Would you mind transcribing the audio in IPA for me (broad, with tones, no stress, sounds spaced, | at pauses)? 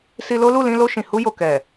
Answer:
s i˧ l o˦ l u˦˨ l ĩ˧ l o˧ ʃ ĩ˨ h u˧ j o˨ k ɛ˨